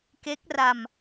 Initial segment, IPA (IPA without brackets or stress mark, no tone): k